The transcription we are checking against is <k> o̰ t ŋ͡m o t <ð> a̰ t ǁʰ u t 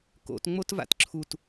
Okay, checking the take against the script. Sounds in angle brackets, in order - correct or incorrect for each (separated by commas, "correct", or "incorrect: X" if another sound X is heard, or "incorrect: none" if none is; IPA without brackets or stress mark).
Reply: correct, incorrect: v